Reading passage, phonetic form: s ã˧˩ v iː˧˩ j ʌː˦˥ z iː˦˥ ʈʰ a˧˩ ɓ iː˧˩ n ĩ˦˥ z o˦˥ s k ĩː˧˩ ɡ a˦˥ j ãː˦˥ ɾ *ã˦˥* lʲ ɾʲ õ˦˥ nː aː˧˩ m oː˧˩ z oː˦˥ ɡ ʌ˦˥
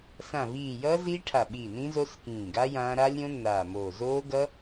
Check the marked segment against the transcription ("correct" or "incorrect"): incorrect